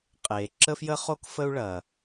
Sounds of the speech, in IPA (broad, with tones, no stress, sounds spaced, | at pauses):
qʼ eː˩ ǁ ə˥ f j ə˥ χ o˥ k f ə˥ u̯ ɭ ɐː˩